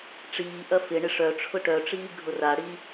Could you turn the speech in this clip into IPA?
ʈ͡ʂ iː ʔ ɐ f ɪ ɳ ɪ ʂ œ ʈ͡ʂʰ ʊ ʈ œ ʈ͡ʂ iː ɡʱ ʊ r a ɽ i

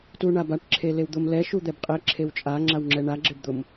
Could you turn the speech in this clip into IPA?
t u ɳ a b a ʈ ǁʰ e l e w d̪ ʊ m l ɛ ʃ u d̪ ɛ b qʼ ɛ ǁʰ e w t͡ʃʼ a ŋ͡ǁ a w ŋ͡ǁ ɛ ɳ a ɡ͡ǁ e b d̪ ʊ m

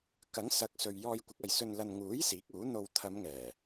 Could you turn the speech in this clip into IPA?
k ɐ˨˥ ŋ s ɐ˨˥ k̚ s ɵ˨ ɥ j ɔː˧ j kʷ ɪ˨˥ k̚ ɐ˨ j s ɵ˧ n l ɐ˧ n ŋ uː˨˥ j s iː˨˥ k̚ uː˨˥ n̪ o˧ w t̪ʰ ɐ˨˧ m ŋ ɛː˨˩

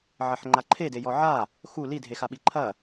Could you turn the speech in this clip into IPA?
ʕ ɐ ħ ŋ͡ǃ a ǃʰ e d e j ɔ ʕ a | x u l i dʱ e x a ɓ i ǃʰ ɐ

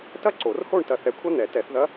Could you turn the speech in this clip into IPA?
t ɐ˥ ǀ o˨˩˦ r h o˥˧ ɳ t ɐ˧ θ ɛ˧ kʷʰ ɐ˥ n̪ ɛ˨˩˦ t ɛ˨˩˦ θ ð ɐ˧˥

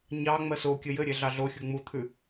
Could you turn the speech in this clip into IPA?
ɲ ɑ ŋ͡m ɜ s o kʲ ə j ɘ ɾʲ e ɮ ɑ ɮ o xʲ u ŋ͡m u t̪ʰ ʉ

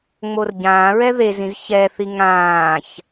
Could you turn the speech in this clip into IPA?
ŋ͡m o r ɟ ãː ɹ ɛ ð e z ĩ z ç ɛ θ i ŋ ãː ç

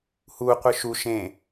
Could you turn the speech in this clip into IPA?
h u qʷ ɯ ʃ u ʃ ẽ

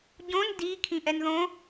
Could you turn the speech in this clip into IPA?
ɟ õ n d i kʰ ĩ ʔ ɛ n ð õ

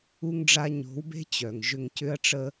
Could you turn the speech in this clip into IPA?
u˥ ŋ ɖ͡ʐ a˥ ɲ o̤˧˥ w b e̤˥ t͡ɕ œ˩ ŋ ʒ ʏ˧ ŋ c ʏ˥ ɐ̯ ʈ͡ʂ ə˥

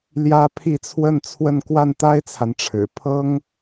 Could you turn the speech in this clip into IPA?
l j ä˥ pʰ i˥˧ t͡sʰ w ə˥˧ n t͡sʰ w ə˥˧ n k w a˥˩ n t̪ a˥ ɪ̯ t͡sʰ a˨ n ʈ͡ʂʰ ɻ̩˨˩ pʰ ɤ˥ ŋ

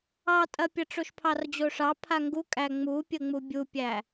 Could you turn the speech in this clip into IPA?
ɑ tʼ ɐ pʲ ɐ ʈ͡ʂ o ʃ pʰ ɑ r d͡ʑ o ʂ ɑ pʰ a ŋ ɡ u kʼ æ ŋ͡m u pʲ ə ŋ͡m u bʲ u pʲ æ

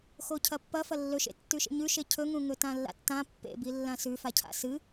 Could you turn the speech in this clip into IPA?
x o cʰ ɐ pː ɐ f ɐ lː ɵ ʃ ḛ tː ʉ ʃ ḛ ɲ ʉ ʃ e cʰ ɵ ŋ ũ ŋ ɵ t ã lː a̰ tː ã pː ḛ b i lː ã s ʉ f a cʰ a̰ s ɨ

